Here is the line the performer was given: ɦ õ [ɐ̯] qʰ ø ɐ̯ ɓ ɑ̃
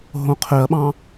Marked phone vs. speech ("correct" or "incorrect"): incorrect